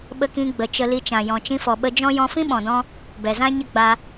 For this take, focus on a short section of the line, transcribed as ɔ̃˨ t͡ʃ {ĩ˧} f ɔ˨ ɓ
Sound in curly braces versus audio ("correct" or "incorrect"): correct